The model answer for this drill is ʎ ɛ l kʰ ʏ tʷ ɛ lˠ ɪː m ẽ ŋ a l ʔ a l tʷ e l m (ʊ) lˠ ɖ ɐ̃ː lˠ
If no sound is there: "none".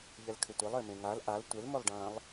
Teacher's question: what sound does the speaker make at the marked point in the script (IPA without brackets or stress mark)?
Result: ʊ